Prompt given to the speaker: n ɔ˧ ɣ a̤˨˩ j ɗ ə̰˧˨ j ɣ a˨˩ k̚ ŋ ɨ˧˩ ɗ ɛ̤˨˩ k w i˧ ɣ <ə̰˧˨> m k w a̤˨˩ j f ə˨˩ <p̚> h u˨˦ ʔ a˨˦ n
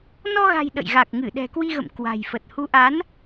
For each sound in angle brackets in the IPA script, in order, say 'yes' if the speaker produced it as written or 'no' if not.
yes, no

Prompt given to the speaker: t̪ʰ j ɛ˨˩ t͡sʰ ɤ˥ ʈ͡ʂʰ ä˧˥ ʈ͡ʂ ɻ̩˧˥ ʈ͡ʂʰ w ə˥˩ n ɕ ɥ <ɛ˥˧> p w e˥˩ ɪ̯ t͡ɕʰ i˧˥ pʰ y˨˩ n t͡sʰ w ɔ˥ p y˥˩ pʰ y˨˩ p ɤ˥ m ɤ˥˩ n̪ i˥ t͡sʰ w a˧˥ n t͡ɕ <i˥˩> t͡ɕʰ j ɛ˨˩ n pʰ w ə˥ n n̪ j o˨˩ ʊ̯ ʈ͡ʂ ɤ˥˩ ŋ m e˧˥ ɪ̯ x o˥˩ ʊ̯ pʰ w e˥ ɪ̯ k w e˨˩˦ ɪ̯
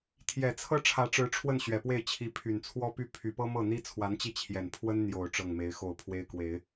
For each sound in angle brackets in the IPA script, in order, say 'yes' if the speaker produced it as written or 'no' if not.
no, yes

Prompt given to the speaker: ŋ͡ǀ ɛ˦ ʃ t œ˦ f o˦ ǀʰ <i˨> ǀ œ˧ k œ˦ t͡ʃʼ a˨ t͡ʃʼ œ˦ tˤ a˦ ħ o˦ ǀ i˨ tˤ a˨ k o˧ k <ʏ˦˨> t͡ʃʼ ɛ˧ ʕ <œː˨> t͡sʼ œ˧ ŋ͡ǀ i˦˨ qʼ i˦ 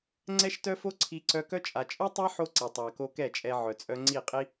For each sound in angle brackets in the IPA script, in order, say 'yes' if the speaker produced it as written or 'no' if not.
no, no, no

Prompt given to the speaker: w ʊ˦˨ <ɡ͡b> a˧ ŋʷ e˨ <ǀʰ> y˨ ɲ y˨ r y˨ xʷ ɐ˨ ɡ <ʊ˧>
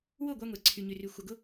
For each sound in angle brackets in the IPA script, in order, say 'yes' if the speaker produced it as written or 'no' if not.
no, yes, yes

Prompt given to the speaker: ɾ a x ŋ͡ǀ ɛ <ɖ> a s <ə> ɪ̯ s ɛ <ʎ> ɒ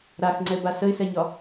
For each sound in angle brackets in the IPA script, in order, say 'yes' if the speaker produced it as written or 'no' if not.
no, yes, no

